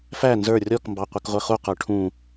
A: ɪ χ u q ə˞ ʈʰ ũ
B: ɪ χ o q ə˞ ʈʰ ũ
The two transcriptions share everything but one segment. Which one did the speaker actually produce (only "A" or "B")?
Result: A